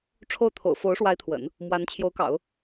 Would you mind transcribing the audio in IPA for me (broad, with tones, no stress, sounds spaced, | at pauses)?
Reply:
ʈ͡ʂʰ o˥˩ ʊ̯ t̪ʰ o̰˨˩ ʊ̯ f o˧˥ ʊ̯ ʂ w a˧˥ ɪ̯ t̪ʰ w ə̰˨˩˦ n | m w a˧˥ n t͡ɕʰ j o˧˥ ʊ̯ k ɑ̰˨˩˦ ʊ̯